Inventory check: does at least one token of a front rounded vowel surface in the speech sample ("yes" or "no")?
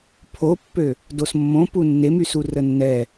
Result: yes